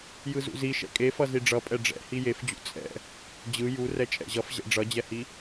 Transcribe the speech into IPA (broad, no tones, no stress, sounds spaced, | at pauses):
j ɯ z ṵ z i ʃ ɛ̰ kʼ e f ʌ z i ɖ͡ʐ ʌ pʼ ɛ ɖ͡ʐ ɛ̰ h i j e f d͡ʑ ṵ t͡sʼ ɛ̰ | d͡ʑ ɯ j u r ɛ t͡ʃʼ ɛ̰ ʑ ʌ f ʑ ɛ̰ ɖ͡ʐ ʌ d͡ʑ ɛ h i